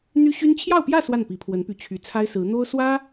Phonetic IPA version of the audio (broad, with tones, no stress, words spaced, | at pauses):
n̪y˥ɕy˥n t͡ɕʰjɑ˥˧ʊ̯pjä˥˧ swa˥˩npi˧˥pʰwə˧˥npy˧˥ t͡ɕʰy˧˥t͡sʰa˥ɪ̯sɹ̩˧˥ n̪o˥ʊ̯swä˥